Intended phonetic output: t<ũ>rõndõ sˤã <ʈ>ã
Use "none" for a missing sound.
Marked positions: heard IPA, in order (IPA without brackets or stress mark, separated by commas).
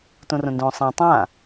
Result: õ, tˤ